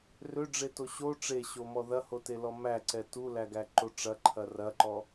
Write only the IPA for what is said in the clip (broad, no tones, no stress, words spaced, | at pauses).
røɖ͡ʐeto ɕo ʈ͡ʂeɕomɔ ðɐhotelɔ mæǀɛ tulæɡæǃo ʈ͡ʂɐǃʰɐ rɐǃɔ